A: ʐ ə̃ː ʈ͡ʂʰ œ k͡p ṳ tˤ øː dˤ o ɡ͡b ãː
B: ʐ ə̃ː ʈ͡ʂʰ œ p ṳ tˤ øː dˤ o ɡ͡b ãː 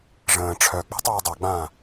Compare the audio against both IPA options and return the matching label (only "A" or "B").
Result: A